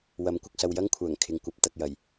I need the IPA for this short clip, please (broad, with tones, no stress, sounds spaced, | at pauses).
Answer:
w ɐ˨˥ m kʷ ɪ˨ k̚ s ɐ˧ w j ɐ˥ ŋ kʷʰ œː˨˩ ŋ kʰ ɪ˨ ŋ kʷ ɐ˨ p̚ t̪ ɐ˧ k̚ j ɐ˨˩ j